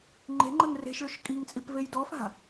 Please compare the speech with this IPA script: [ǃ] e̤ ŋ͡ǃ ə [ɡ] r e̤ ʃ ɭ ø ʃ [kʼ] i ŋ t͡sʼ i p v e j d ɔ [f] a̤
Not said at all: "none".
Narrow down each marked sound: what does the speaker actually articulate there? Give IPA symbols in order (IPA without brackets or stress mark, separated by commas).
ŋ͡ǃ, ŋ, kʼ, f